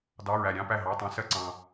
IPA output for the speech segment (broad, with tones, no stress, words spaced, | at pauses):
dɑ˧˥˧ɹæ˨ ɾʲɑ̃˧˥˧pæ˥˩ɦɑ˧˥˧tˤɑ̃˨˥ sɜ˨ǀɑ̃˨